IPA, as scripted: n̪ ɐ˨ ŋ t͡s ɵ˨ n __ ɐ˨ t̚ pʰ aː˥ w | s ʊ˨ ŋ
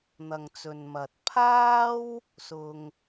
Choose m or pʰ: m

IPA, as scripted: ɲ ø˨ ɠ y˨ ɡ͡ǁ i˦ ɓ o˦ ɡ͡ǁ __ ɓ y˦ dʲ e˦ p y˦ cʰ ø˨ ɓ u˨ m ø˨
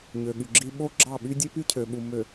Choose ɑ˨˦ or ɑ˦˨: ɑ˦˨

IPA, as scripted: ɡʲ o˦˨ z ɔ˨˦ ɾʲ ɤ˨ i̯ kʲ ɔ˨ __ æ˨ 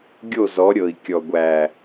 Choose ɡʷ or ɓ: ɡʷ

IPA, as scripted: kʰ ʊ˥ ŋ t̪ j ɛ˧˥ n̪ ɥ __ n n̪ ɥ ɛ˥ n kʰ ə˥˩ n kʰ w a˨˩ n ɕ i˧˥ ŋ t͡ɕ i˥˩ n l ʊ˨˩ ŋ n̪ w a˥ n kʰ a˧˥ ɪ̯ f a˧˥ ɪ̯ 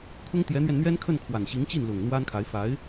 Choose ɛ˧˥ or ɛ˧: ɛ˧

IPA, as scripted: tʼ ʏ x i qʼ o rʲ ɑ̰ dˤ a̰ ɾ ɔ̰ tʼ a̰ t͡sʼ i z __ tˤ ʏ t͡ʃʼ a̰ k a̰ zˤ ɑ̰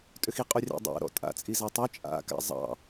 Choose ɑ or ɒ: ɑ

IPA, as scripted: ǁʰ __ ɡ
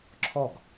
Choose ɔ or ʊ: ɔ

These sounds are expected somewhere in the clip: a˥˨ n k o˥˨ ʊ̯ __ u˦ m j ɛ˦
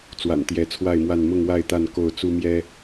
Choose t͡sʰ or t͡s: t͡s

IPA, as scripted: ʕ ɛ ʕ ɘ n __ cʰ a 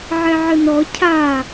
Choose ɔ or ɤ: ɔ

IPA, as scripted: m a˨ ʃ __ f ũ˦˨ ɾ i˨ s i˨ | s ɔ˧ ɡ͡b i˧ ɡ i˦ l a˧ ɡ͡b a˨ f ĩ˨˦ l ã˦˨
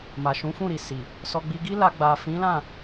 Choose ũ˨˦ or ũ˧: ũ˨˦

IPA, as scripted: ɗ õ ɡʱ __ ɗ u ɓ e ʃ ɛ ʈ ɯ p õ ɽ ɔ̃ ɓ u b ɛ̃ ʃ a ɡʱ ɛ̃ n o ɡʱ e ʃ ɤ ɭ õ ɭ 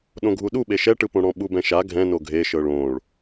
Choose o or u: u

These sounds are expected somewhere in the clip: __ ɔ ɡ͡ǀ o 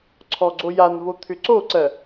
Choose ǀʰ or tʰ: ǀʰ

